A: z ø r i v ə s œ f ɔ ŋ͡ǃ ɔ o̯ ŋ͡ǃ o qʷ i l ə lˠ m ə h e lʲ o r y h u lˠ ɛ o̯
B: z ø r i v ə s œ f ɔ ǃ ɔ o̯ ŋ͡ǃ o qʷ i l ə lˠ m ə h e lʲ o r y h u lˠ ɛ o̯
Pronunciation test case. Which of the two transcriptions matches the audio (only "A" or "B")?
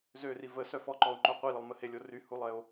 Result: B